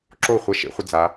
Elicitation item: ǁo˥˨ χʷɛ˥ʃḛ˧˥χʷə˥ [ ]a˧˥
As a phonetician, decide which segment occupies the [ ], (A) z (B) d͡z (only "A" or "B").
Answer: B